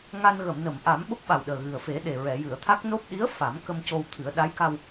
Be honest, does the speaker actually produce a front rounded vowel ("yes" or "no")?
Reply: no